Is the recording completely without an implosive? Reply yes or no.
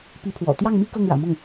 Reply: yes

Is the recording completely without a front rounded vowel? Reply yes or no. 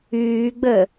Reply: no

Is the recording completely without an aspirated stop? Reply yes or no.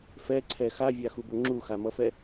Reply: no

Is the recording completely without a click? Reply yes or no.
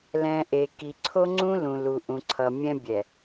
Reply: no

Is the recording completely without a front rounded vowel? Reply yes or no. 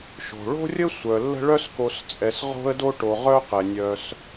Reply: no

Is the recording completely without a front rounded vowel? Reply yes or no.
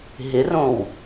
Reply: yes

